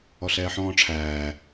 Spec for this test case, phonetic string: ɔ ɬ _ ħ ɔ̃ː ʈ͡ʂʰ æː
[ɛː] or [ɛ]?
ɛː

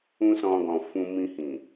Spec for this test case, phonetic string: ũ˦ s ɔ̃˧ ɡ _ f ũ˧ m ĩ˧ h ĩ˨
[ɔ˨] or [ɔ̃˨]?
ɔ̃˨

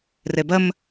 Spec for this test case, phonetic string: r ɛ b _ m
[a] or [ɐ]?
ɐ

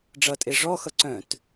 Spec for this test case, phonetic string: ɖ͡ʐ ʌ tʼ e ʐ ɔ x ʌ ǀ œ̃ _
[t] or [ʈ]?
t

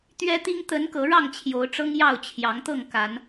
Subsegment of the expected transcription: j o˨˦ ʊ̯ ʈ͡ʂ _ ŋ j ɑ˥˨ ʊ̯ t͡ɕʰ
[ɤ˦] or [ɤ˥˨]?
ɤ˦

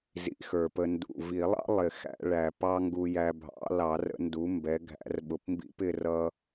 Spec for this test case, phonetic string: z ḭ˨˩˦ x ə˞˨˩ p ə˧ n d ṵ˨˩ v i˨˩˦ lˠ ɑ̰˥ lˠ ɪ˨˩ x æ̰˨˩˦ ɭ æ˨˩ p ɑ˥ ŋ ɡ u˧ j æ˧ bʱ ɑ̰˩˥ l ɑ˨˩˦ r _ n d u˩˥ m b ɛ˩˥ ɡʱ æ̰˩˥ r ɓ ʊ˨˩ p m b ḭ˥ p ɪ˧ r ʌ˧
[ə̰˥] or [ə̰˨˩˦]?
ə̰˨˩˦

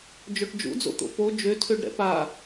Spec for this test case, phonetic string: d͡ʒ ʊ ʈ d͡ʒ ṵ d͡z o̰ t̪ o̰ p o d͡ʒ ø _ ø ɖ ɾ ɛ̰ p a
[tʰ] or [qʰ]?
tʰ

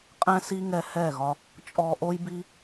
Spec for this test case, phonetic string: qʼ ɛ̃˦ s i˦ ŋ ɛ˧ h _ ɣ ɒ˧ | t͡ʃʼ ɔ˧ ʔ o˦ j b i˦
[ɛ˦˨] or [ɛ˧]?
ɛ˦˨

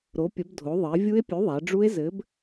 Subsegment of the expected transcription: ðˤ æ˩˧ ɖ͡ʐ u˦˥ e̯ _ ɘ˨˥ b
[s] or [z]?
z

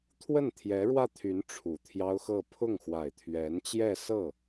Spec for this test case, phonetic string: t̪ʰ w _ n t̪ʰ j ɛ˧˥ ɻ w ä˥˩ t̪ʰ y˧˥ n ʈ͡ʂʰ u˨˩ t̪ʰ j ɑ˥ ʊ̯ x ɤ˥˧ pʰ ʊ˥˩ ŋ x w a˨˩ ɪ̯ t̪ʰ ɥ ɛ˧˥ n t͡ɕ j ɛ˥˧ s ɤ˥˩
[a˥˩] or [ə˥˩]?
ə˥˩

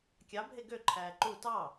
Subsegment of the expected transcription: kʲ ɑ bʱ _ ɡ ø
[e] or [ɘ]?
e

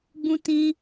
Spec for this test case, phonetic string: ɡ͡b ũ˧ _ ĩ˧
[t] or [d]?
t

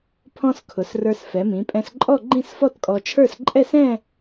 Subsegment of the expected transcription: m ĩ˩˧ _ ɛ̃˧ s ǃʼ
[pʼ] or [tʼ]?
pʼ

